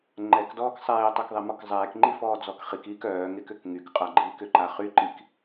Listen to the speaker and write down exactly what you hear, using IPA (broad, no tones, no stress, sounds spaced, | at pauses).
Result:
ŋ͡ǃ ɛ k d ɔː k sˤ ɛː tˤ œ k ðˤ ɛ m ɔ k zˤ ɛː k ŋ͡ǃ i f ɔː d͡z ɔ k χ i k iː k œː ŋ e k ʏ k ŋ y k qʼ a ɡ͡ǃ iː k ʏ ǃ a χ y ǃ i k